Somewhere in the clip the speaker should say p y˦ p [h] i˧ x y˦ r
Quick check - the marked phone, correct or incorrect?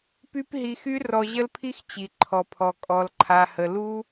incorrect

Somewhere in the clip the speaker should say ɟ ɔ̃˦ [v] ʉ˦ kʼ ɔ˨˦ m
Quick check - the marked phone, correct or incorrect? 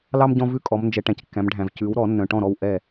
correct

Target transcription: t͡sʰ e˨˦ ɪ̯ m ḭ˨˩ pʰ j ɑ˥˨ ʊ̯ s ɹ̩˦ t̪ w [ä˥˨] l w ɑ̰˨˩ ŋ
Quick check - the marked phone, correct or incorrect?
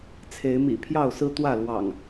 correct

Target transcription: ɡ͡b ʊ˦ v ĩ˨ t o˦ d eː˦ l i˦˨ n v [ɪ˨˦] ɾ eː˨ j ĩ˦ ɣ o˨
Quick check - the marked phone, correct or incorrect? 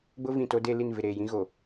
incorrect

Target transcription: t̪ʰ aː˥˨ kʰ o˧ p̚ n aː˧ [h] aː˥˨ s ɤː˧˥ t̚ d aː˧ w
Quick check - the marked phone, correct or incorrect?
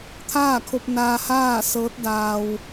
correct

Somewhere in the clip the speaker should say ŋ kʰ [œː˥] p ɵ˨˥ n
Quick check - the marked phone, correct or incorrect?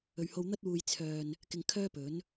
correct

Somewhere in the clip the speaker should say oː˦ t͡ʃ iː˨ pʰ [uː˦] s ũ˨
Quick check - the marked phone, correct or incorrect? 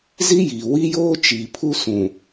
incorrect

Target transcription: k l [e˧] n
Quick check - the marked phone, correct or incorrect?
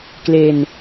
correct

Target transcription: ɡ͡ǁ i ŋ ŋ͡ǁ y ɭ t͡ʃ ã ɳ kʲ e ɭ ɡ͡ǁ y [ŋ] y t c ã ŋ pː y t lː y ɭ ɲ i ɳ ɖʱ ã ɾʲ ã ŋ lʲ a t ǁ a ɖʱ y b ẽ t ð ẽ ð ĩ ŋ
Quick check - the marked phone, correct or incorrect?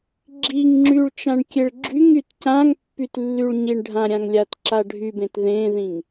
correct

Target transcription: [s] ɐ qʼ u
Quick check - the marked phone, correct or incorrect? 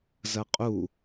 incorrect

